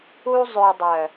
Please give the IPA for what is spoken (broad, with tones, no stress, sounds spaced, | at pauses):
u˧ zˤ ø˨ dˤ œ˨